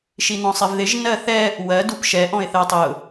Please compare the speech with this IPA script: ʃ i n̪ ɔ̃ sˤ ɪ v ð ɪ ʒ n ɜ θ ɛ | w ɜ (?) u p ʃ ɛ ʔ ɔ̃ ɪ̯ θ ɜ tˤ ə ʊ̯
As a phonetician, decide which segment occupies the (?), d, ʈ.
d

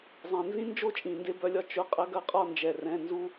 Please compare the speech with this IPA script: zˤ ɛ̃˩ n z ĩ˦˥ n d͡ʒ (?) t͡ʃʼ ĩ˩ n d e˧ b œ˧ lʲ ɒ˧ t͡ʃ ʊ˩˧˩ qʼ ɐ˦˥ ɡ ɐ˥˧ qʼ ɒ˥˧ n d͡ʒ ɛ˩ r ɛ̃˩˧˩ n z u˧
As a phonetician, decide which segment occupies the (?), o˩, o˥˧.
o˥˧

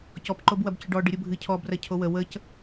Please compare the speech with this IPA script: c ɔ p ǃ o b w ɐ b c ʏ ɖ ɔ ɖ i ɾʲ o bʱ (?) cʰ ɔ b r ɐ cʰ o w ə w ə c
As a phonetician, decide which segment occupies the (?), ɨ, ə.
ɨ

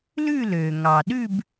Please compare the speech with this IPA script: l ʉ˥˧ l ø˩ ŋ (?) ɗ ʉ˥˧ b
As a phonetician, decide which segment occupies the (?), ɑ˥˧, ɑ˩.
ɑ˩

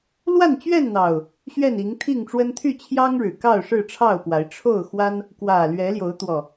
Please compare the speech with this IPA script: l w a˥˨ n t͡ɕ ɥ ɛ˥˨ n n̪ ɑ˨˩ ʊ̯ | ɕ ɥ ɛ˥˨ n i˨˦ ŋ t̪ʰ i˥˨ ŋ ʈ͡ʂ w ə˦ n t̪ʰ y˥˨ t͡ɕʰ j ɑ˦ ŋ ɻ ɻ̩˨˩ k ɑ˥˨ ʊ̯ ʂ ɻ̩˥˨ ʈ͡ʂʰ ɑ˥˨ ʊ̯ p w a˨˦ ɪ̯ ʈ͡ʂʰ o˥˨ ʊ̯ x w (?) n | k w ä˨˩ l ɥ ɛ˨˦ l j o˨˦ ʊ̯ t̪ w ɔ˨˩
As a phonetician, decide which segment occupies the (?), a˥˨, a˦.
a˦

